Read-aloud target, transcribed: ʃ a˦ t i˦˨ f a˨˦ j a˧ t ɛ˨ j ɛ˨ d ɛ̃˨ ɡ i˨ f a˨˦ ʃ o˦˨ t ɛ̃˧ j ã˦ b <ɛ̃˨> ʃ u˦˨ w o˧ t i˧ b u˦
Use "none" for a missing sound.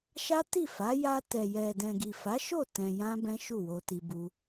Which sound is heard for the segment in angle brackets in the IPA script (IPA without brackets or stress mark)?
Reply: ɛ̃˦